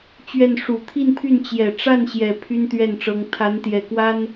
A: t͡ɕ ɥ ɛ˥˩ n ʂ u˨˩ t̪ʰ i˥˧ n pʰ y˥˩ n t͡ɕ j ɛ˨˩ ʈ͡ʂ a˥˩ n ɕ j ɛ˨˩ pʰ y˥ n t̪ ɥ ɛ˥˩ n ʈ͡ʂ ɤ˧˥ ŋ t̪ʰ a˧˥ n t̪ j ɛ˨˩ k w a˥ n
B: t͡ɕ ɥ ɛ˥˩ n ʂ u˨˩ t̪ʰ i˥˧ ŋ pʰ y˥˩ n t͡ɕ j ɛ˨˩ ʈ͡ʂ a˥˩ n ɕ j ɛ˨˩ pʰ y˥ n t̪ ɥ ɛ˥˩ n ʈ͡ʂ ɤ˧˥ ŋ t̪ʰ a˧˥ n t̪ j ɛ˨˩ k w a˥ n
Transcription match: A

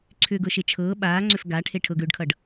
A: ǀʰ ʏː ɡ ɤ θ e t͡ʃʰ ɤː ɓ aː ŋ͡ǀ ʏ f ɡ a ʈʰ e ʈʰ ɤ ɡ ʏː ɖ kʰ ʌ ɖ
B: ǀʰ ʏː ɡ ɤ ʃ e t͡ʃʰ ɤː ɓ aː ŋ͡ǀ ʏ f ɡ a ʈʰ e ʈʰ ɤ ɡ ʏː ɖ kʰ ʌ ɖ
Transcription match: B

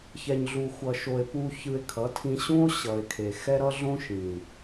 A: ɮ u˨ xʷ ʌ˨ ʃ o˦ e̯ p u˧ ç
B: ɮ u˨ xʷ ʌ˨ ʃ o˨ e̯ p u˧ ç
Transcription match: B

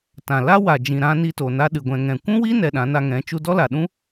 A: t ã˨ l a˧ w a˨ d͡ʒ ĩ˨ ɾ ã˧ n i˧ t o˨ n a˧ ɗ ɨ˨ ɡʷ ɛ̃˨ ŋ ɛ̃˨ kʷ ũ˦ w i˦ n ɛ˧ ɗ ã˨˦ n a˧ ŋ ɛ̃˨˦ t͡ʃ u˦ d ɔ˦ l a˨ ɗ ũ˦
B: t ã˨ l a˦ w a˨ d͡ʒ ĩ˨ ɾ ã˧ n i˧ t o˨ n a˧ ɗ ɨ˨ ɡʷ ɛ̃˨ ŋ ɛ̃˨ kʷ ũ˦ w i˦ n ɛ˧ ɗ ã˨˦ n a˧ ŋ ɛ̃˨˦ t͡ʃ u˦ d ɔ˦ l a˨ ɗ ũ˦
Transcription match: B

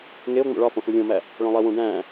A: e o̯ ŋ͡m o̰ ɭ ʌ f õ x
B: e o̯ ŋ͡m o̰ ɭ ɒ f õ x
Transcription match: B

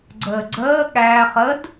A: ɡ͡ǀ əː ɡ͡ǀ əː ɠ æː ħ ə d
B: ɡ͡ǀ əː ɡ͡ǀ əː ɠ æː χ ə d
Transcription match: B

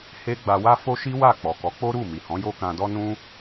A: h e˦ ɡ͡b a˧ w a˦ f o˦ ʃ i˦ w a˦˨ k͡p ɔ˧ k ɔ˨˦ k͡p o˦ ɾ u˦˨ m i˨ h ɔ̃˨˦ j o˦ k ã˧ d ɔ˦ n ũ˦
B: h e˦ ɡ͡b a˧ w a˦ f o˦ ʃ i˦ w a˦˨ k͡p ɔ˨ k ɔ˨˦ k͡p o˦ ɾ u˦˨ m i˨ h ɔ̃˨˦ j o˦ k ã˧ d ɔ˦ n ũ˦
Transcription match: B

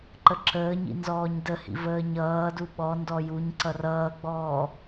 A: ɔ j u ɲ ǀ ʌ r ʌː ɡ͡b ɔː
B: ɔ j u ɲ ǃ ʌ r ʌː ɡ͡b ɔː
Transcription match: A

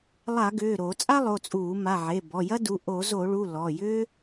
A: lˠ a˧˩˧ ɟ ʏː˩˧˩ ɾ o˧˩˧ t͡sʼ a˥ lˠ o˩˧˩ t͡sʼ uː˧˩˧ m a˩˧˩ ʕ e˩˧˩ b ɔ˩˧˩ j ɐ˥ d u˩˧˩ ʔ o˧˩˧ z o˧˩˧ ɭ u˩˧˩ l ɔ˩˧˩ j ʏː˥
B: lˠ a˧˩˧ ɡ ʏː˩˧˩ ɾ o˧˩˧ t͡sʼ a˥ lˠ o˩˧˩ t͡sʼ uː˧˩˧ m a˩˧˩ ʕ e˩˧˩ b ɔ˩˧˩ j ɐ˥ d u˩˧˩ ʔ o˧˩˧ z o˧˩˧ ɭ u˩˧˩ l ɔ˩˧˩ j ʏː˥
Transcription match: B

